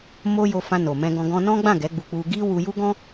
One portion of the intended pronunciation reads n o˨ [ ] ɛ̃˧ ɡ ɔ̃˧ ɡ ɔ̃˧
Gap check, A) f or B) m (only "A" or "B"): B